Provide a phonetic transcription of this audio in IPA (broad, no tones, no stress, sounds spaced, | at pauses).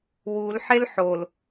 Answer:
w u l ħ e l ħ o l